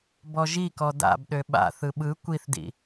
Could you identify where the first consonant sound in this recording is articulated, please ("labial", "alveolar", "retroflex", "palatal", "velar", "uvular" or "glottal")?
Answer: labial